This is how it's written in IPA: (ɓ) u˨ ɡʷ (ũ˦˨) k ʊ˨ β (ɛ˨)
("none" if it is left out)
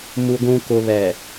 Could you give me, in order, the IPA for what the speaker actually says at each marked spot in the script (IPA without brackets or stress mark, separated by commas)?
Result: m, ũ˨, ɛ˨